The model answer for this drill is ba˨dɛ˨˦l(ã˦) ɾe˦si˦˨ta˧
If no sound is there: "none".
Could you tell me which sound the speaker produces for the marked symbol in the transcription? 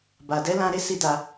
ã˧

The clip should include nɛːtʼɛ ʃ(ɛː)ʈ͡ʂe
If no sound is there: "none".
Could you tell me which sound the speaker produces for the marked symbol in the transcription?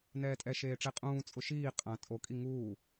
eː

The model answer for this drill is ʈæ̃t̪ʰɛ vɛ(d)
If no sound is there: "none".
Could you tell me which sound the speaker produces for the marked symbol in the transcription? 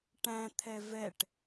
ʈ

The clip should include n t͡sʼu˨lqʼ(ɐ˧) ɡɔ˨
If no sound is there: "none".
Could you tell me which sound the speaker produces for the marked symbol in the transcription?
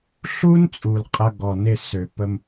ɐ˧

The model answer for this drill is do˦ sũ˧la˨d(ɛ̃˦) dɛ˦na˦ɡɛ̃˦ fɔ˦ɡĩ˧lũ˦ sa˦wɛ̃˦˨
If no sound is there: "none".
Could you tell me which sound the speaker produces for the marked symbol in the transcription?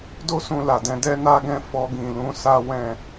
ɛ̃˨˦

